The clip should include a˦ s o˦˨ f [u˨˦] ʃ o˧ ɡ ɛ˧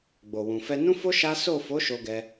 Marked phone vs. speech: incorrect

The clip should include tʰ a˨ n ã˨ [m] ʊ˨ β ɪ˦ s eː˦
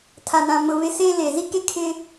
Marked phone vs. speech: correct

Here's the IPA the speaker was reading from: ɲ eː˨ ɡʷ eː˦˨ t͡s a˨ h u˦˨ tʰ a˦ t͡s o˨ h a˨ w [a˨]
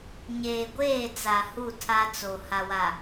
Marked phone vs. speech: correct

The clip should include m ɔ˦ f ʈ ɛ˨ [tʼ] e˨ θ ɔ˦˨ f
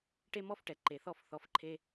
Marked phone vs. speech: incorrect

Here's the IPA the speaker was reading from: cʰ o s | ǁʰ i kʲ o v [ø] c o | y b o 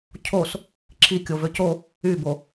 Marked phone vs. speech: correct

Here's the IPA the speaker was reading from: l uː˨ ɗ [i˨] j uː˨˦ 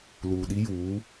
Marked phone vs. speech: incorrect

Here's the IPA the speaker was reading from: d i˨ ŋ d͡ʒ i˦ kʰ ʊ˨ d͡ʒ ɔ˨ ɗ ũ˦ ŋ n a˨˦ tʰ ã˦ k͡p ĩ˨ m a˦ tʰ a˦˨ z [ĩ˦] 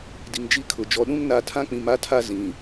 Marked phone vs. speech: incorrect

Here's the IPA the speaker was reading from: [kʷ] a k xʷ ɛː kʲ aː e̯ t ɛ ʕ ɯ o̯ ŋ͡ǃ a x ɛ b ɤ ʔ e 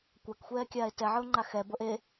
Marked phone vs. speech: correct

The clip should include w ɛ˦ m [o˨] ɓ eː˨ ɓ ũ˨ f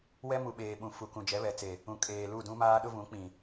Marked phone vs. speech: incorrect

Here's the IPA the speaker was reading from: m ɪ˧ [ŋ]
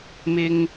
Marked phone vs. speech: correct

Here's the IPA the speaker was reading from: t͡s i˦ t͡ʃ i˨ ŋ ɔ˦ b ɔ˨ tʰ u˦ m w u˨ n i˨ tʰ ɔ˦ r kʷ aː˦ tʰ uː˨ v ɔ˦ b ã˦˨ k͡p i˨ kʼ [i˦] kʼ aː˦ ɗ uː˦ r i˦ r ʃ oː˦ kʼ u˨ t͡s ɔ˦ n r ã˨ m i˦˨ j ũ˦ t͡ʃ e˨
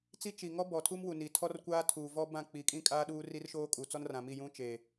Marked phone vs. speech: incorrect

